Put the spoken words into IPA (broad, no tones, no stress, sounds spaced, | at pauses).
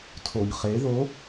tʰ o ɲ χ e ð o